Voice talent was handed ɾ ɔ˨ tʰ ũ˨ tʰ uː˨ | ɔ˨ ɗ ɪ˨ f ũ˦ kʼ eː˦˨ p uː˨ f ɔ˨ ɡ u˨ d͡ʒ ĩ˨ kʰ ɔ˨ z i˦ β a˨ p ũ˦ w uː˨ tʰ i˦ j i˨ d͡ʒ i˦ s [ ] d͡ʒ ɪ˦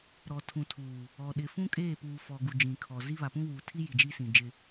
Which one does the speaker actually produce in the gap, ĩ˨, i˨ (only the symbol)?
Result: ĩ˨